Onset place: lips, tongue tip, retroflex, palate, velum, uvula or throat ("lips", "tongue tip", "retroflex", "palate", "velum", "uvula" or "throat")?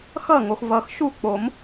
velum